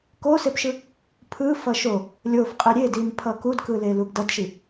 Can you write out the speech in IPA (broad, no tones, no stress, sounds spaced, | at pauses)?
k o s e p ʃ ɯ | pʰ ɯ f ʌ ʃ o | lʲ o f qʼ e ɾʲ e d i m pʰ ʌ k u d k ɯ l e l u ɡ d ʌ d ʃ i